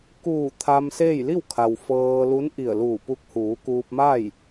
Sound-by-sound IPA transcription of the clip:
kuː˧˩ t̪ʰa˧mseː˥˨j li˥˨w kʰa˩w fɤː˧ lu˧˥nʔi˧˩ə̯luː˧˩ pu˧k̚huː˩˧kuː˧p̚ma˥˨j

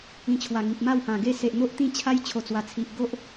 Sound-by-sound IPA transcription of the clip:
ĩ˧t͡ɕʰwa˨˩ŋi˨p̚ ma˥˧whã˨˩ɡe˥˧ se˨ʔn̪o˦ʔt̪ĩ˥˧t͡ɕʰa˦j t͡ɕʰo˨˩t͡swa˨˩t͡sʰi˨ʔ ɡo˦ʔ

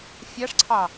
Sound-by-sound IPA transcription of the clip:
fʲaʂǀʰɑ

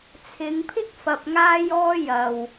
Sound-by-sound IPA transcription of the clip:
t͡sʰɪ˨˧ŋpʰɪ˥k̚ fɐ˧p̚ŋaː˥j ɔː˥ jɐ˨w

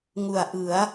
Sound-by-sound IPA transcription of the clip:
ŋu˨˩a̯ʔɯ˩˦a̯

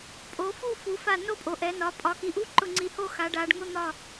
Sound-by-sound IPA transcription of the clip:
pʼo˩˧fu˥˧fu˩˧fa˧˩ no˥˧pʼo˩˧ʔɛ˩˧nɒ˩˧ pʼɒ˩˧ki˩˧ʔu˧˥˧ǃʊ˧˩ ŋ͡ǀi˧˩ho˥˧ xa˩˧ɖa˩˧ɖ ŋʊ˧˥˧n̪ɒ˧˩

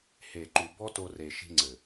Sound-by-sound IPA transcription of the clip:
he˨ǃu˨ bɔ˦to˧re˨ʃi̤˧ ŋ͡ǀɘ˨

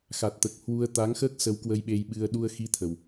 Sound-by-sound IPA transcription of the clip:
xa˨˩t̚t̪əː˨˩k̚ hwu˧ə̯ t̪a˨˦ŋxəː˦˥k̚sə˨˦w kwə˧jɓe˧jɓɨ˧ə̯ ɗu˧ə̯xi˧ t̪ʰə˨˩w

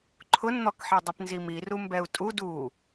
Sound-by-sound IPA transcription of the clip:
ǃʰʊnn̪ɔkħe dˤipnzimiru mbɛu̯tʼud u

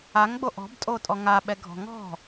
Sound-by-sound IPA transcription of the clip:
aŋɡ͡bo ʔɔ̤btʼotʼɔ ŋaɓɛɡʱɔ̤ ŋɔ̤

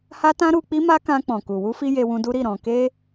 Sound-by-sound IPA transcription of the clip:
ha˦tã˦ ɾu˧k͡pi˦ma˦kã˧ k͡pɔ̃˨ku˨wu˧fi˧ je˧wũ˧du˦ɾi˦˨ ɾɔ̃˨ke˧

